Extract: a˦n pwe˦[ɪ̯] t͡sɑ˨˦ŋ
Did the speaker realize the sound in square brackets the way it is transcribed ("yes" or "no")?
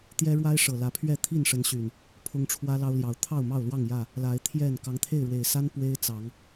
yes